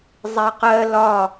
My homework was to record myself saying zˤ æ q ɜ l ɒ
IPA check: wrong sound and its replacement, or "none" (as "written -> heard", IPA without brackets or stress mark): none